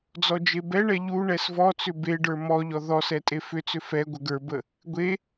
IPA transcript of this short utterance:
d͡zɔd͡ʒebɛɳɛ ʎu ɳɛsvɔt͡sʏ beɖə˞ mɔʎɔ ðɔsɛ tʼefʏt͡sʏ fɛ ɡʷəɡə˞bə | ɡʷe

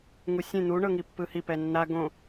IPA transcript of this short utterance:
ŋusʲẽ n̪u ɳɤŋipːɯhi pɛnːa ɡõ

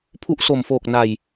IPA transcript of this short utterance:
pʰu˦˥ʔso˨˩mfoː˨˩k̚ na˨˩j

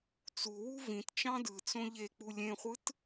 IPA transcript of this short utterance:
t͡suwu vĩt t͡ʃɑ̃dɯt͡sõ ʎek͡pu lʲẽχʷɯt

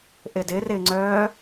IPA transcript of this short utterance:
ʔɪdɪ rɪ ŋ͡ǀœː

